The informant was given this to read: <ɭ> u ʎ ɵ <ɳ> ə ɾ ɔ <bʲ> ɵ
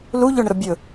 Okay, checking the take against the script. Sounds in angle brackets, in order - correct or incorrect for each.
incorrect: l, correct, correct

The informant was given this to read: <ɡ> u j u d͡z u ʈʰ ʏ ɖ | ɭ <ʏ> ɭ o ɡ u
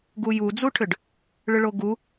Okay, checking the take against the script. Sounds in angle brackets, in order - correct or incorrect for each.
correct, correct

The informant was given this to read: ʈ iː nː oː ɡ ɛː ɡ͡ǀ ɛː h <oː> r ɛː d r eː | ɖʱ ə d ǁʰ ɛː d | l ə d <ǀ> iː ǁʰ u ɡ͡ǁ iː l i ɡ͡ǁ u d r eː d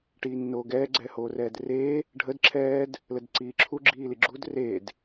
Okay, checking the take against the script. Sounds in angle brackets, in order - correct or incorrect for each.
correct, correct

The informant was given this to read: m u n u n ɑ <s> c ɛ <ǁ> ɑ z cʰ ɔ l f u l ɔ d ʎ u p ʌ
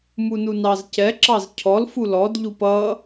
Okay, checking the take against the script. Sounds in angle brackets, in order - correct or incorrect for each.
incorrect: z, correct

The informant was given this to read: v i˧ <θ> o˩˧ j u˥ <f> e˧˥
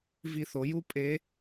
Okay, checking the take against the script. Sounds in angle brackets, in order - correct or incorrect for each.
correct, incorrect: pʼ

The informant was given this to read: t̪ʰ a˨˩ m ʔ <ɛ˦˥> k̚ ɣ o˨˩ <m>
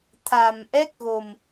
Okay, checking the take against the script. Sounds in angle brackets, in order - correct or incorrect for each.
correct, correct

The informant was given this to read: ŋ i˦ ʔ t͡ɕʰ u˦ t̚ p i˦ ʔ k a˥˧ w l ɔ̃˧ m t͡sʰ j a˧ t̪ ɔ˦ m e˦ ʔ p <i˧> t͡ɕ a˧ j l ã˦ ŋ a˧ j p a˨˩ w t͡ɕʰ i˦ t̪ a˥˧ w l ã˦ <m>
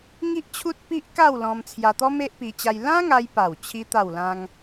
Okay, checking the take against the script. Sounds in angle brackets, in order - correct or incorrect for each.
correct, incorrect: ŋ

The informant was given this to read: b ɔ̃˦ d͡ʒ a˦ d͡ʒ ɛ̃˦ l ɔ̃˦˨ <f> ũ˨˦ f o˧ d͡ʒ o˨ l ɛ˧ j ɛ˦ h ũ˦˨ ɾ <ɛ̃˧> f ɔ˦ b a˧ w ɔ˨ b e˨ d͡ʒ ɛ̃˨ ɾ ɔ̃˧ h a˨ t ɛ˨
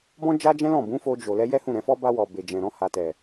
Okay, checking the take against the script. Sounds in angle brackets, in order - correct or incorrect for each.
incorrect: b, correct

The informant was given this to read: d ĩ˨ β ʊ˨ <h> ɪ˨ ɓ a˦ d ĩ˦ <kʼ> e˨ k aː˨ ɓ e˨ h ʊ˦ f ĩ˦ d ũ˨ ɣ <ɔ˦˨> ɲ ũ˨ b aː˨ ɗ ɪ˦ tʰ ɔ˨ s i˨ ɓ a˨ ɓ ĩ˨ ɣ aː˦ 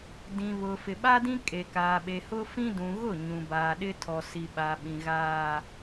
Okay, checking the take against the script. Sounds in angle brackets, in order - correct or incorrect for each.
incorrect: f, correct, incorrect: ʊ˦˨

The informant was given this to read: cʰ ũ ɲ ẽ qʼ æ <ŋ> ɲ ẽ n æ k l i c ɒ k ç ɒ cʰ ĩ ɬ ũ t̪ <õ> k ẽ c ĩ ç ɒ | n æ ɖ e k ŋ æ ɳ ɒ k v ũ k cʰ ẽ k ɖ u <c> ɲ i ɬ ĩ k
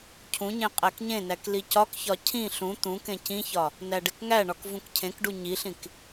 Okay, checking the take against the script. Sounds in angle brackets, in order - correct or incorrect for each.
incorrect: k, incorrect: ũ, incorrect: none

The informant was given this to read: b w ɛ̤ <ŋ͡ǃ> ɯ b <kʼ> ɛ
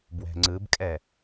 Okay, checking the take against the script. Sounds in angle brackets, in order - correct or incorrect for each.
incorrect: ŋ͡ǀ, correct

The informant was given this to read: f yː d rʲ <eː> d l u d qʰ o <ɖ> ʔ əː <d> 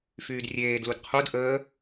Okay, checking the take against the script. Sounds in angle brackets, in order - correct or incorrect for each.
correct, incorrect: d, incorrect: none

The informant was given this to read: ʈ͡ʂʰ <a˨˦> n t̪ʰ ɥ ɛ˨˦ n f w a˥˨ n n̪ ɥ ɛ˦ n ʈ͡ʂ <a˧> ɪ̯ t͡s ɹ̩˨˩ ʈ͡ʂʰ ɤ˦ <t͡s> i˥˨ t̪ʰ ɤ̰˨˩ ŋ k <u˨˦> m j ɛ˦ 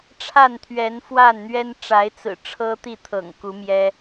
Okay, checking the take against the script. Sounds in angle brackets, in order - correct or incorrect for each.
incorrect: a˥˨, incorrect: a˨˦, incorrect: t̪, correct

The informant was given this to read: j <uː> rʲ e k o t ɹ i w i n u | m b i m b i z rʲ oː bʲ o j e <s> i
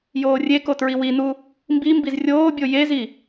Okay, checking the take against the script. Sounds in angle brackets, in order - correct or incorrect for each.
incorrect: oː, incorrect: z

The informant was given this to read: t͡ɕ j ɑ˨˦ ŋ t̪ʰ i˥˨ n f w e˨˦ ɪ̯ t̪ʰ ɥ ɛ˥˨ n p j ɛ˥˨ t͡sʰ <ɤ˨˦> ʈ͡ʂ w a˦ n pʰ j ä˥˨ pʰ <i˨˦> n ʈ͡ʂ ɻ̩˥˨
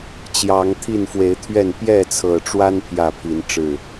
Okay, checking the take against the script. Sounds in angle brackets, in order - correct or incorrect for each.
incorrect: ɤ˨˩, correct

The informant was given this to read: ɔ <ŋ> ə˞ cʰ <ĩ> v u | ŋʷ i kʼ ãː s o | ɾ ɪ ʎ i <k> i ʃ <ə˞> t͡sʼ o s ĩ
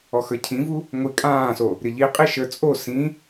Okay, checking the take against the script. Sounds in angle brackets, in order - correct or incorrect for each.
incorrect: x, correct, incorrect: qʼ, correct

